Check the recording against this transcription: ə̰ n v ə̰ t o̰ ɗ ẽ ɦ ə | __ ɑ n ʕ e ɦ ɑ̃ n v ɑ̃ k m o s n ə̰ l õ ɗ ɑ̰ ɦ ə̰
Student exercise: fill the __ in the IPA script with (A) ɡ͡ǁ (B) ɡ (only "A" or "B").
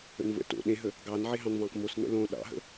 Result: B